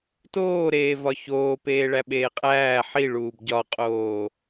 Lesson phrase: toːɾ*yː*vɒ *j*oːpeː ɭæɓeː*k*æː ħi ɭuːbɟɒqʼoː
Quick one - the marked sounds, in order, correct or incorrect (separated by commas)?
incorrect, incorrect, incorrect